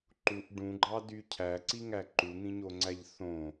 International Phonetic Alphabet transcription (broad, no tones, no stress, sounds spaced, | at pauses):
ǃ u ʔ ɖ ũ ɡ͡ǃ ɑ d y cʰ æ ǀ i ŋ æ ǃ u n̪ ĩ ɲ o ŋ͡ǀ æ ʎ θ õ